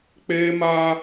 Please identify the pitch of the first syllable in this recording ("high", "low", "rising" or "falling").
high